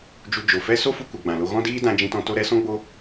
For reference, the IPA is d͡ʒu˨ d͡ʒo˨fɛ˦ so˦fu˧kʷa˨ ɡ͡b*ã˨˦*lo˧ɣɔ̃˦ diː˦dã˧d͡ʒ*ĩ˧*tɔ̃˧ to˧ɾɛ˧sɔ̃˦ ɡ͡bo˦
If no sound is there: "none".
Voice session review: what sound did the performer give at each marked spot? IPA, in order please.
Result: ã˨, ĩ˧

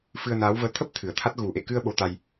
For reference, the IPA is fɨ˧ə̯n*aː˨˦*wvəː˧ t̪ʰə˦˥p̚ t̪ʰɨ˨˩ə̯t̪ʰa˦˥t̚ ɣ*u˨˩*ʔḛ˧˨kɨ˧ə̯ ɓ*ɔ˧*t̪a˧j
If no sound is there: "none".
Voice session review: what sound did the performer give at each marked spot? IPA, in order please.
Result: aː˨˦, u˨˩, o˧

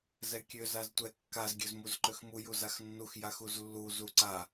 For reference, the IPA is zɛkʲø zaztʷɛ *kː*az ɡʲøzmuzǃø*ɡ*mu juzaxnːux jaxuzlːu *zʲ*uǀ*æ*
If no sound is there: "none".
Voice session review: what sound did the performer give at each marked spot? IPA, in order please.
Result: kː, x, z, a

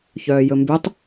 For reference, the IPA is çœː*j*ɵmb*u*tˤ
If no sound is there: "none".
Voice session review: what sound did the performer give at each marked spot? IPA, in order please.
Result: j, y

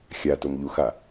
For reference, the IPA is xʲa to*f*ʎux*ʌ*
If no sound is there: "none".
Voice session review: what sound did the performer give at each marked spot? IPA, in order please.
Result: m, a

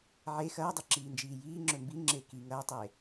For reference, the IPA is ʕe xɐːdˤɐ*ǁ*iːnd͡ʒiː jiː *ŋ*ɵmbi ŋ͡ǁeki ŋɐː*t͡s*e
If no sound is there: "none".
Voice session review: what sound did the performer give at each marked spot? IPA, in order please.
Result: ǁ, ŋ͡ǁ, tˤ

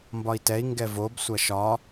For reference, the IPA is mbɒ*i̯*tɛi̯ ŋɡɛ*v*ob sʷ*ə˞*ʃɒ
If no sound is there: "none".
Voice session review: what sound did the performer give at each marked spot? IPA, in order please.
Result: i̯, v, ɐ

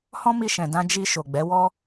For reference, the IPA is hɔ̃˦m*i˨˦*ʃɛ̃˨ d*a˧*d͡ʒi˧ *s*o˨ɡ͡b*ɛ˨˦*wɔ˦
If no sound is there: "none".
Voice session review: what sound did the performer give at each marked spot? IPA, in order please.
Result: i˧, ã˧, ʃ, ɛ˨˦

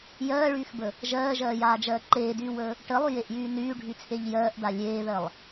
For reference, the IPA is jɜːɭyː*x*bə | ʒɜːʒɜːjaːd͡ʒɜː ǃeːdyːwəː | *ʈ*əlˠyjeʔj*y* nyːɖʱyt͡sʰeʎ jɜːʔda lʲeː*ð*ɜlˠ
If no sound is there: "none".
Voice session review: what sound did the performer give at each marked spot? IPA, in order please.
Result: x, ʈ, yː, ð

